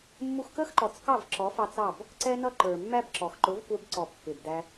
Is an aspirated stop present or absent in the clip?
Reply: absent